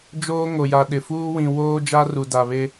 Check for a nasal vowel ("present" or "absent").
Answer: present